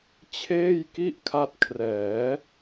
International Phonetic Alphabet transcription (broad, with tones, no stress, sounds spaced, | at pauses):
t͡ɕʰ eː˥˩ j k i˥˩ ʔ kʰ a˦˥ t̚ kʰ r ɛː˩˦